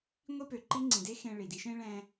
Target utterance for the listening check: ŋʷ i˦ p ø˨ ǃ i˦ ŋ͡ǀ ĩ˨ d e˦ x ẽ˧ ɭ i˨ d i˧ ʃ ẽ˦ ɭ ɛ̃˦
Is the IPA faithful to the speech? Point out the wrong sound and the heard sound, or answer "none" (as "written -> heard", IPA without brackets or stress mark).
none